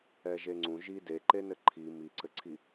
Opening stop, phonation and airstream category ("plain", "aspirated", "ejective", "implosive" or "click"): click